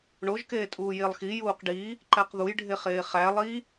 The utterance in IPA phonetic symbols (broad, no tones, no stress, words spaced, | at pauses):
ɳoʒkeː tʼuːjelˠxi juːqɖi | ǃæqðujɖʱeχeː χæ lˠi